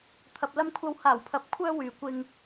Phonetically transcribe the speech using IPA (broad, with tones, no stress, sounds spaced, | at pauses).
t̪ʰ ɐ˨ p̚ l ɐ˧ m kʷʰ ɐ˨˧ w h aː˨˩ w pʰ ɐ˨˥ p̚ kʷʰ œː˧ w yː˨ kʷ ɪ˧ ŋ